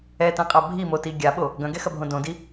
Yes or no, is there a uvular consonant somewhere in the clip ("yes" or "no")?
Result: yes